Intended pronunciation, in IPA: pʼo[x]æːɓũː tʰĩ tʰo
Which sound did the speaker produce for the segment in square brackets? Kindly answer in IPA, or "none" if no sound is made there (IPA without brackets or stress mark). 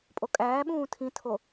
kʼ